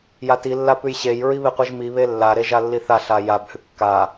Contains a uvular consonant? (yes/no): yes